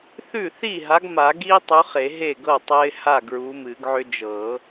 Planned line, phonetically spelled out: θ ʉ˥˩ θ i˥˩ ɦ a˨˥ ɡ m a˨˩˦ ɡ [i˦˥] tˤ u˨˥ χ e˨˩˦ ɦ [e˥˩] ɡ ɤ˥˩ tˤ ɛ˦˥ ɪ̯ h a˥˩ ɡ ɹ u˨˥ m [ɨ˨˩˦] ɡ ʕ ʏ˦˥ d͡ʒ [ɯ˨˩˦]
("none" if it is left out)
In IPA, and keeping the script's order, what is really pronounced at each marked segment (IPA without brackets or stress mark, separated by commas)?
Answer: i˦˥, e˥˩, ɨ˨˩˦, ɤ˨˩˦